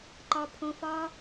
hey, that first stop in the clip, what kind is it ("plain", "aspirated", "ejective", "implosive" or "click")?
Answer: click